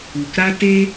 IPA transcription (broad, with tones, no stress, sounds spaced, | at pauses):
u˨ k ɾ a˦ t e˦